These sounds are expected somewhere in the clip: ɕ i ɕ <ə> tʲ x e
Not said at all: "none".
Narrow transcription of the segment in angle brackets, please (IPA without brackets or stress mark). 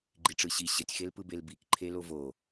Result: ə